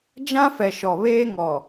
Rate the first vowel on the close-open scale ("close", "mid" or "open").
open